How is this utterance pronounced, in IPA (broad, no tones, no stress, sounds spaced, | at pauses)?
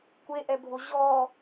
kʷ e ʔ ɛ bʱ o ʑ ɔ